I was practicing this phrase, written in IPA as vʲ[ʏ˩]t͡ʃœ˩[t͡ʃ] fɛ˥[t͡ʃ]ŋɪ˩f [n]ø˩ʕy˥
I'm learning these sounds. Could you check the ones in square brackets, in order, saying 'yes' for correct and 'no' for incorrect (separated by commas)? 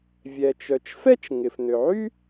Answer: no, yes, yes, yes